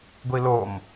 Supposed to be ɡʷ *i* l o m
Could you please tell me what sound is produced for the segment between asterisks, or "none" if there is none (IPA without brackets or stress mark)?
i